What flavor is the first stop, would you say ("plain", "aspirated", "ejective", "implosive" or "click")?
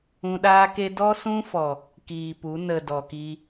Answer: implosive